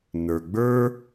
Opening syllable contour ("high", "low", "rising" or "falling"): low